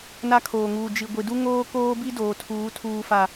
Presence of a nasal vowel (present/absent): absent